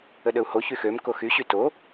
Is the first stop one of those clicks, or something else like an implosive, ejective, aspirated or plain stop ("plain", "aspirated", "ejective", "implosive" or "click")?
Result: implosive